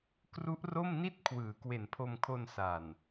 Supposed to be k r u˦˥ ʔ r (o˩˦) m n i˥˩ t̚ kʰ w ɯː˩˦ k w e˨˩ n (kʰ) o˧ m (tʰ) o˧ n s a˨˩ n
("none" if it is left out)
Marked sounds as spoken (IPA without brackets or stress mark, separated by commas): o˥˩, pʰ, kʰ